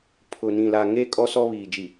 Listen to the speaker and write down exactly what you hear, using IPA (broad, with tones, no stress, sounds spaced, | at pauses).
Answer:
pʰ ʊ˨ n ĩ˨ l a˨ ŋ e˦˨ kʼ ɔ˦ s ɔ˦ β iː˨ d͡ʒ i˨